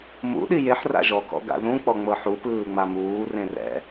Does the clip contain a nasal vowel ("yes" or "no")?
yes